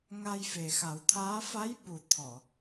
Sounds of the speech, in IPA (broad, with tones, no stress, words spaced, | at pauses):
ŋa˧jfe˨˩xa˨˩˦wt̪ʰaː˧˥ fa˧˥jɓu˨˩ t̪ʰɔ˨˩˨